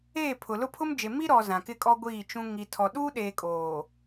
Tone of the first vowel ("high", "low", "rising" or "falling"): falling